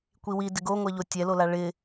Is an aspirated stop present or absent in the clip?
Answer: absent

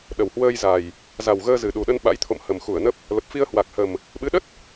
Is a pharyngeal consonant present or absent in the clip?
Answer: absent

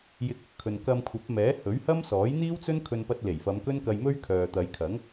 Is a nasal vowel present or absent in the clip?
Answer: absent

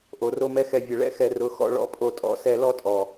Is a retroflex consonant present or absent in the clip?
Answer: present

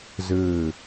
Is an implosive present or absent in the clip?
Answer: absent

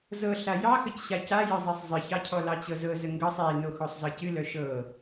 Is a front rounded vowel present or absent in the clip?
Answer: present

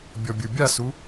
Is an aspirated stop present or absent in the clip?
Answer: absent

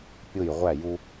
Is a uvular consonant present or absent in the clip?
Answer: present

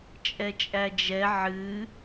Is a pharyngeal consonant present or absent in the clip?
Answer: present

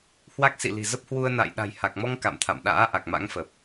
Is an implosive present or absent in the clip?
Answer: present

